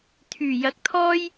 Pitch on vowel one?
low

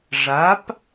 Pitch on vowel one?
rising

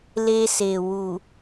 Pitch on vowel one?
high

